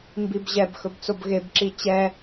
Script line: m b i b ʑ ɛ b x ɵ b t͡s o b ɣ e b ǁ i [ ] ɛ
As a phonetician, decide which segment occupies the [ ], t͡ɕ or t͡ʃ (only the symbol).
t͡ɕ